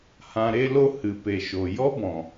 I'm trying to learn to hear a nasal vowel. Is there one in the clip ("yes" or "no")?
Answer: yes